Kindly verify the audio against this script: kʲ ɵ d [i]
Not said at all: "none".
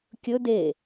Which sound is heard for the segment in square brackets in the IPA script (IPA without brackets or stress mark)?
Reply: e